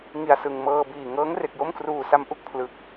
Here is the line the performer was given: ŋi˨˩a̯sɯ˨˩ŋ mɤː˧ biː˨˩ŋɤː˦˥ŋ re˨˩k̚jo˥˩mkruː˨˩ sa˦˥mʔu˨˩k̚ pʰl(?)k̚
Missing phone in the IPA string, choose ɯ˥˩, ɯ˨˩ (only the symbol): ɯ˨˩